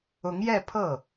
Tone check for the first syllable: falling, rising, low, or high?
rising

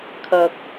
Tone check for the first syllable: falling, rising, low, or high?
low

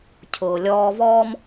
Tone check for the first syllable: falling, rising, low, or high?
low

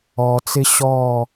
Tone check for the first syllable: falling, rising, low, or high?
low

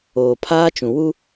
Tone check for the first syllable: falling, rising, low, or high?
low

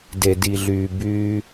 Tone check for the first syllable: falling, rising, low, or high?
low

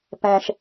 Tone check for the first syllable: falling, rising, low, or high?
high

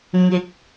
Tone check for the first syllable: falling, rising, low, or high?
rising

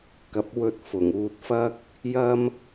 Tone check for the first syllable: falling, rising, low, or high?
rising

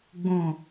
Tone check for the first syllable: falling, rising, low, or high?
low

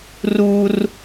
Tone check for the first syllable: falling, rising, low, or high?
high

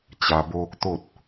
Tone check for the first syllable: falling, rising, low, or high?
low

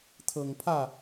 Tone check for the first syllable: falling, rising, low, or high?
low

